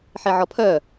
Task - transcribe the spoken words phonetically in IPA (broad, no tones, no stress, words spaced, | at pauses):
ħeʕɔpʰœ